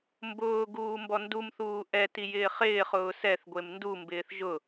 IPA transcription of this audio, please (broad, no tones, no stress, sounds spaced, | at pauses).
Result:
m b ʊː ɡ uː m b ɔ n d u m θ uː ʔ ɛ t i j ɪː χ ɪː χ ʊː s ɛ θ ɡʷ e m n d u m b ɪː θ ʒ ʊ